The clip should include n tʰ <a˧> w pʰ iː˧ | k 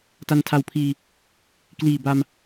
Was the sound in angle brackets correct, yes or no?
yes